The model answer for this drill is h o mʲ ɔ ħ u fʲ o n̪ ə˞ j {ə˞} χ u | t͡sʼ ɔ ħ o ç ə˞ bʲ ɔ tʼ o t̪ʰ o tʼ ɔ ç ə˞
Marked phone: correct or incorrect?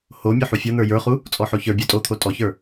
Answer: correct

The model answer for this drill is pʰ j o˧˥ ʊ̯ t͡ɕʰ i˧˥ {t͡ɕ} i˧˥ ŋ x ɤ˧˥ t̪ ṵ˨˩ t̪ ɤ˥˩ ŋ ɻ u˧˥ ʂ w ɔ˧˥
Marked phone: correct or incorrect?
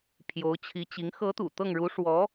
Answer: correct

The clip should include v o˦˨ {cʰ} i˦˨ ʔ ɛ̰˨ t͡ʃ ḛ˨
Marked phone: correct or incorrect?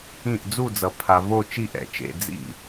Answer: incorrect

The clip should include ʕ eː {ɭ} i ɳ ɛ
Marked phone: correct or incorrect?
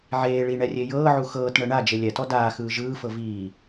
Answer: correct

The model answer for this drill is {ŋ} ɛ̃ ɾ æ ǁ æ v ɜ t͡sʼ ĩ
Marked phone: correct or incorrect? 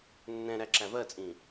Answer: incorrect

